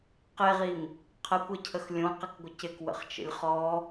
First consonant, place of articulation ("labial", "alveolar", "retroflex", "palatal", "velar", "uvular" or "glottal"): uvular